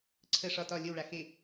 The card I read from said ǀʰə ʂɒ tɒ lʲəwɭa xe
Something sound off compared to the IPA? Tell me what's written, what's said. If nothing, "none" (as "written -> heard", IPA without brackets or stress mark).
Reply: none